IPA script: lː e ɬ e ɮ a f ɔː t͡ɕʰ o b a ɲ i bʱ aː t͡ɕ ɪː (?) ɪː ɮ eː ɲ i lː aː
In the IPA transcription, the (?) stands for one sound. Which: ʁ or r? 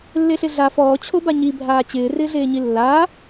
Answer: r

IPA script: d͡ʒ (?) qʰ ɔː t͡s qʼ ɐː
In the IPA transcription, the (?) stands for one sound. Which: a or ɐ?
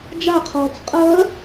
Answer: a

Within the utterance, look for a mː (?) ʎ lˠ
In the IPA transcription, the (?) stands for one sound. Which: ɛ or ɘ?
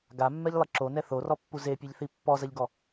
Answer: ɛ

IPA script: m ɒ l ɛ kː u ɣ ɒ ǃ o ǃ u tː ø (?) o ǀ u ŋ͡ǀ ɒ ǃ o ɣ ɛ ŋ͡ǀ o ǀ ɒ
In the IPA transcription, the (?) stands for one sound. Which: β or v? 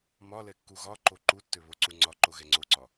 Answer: β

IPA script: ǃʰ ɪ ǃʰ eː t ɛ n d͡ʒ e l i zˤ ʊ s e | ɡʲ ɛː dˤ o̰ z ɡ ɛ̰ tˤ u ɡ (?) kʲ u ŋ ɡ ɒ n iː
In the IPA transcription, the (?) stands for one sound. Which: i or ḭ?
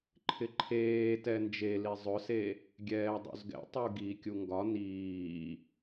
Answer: i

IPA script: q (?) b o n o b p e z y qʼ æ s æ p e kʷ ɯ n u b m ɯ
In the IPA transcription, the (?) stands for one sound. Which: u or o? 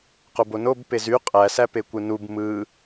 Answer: o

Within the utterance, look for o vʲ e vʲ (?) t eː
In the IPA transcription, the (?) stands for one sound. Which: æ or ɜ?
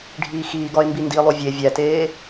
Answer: æ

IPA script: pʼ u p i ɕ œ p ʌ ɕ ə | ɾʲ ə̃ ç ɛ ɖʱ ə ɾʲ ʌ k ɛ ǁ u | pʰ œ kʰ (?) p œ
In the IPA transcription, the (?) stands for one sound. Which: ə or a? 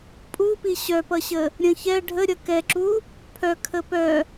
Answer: ə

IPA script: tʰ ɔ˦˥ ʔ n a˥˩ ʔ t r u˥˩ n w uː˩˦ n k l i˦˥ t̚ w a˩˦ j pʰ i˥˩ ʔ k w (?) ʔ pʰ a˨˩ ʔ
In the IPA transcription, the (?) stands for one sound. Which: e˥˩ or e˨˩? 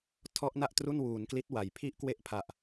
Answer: e˥˩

